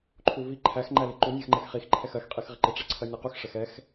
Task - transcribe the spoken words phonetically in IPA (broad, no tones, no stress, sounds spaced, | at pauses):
ǃʰ u v i ǃʰ æ x ŋ͡ǃ æ l ɪ ǃ u nʲ ɜ x ŋ͡ǃ ɛ x χ i x ǃʰ ɛ x ɜ x qʼ i x ʁ ɪ ǃ ɪ ʈ͡ʂ ɛ ǀʰ ɜ nʲ ɛ q u x ʂ ɛ x ɛ x